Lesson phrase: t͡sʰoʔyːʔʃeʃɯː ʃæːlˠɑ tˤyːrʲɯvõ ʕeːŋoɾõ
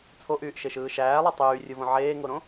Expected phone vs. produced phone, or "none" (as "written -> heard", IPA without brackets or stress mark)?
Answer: none